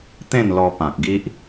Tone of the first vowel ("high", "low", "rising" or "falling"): falling